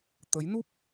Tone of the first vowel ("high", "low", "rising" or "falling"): rising